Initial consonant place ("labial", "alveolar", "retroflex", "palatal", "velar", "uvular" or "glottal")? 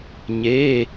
palatal